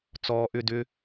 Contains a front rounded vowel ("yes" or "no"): yes